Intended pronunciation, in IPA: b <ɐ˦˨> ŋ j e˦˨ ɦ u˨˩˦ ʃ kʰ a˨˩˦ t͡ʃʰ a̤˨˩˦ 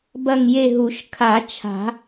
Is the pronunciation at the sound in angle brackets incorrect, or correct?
correct